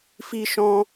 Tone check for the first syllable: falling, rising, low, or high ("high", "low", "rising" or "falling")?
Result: high